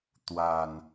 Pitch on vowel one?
low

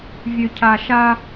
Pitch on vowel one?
high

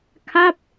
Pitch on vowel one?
falling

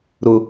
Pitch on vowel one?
low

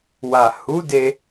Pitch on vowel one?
low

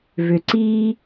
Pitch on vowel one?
low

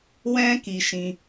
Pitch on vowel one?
high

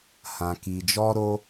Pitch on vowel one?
low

